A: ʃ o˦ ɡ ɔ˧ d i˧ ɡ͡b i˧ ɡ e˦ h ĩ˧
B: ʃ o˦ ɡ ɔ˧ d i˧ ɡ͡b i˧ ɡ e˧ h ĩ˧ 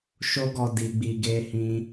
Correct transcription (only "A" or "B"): B